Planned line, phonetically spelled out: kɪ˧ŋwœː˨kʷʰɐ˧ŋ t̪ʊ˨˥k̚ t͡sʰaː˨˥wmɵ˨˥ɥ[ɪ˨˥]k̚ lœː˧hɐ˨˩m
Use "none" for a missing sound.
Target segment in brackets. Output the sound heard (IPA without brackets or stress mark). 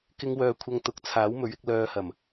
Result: ɪ˧